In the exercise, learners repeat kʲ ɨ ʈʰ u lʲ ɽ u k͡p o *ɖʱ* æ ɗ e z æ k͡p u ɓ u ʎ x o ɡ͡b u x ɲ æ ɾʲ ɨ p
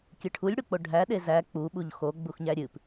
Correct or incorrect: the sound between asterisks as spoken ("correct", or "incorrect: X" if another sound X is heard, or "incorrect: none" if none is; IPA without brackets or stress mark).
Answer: correct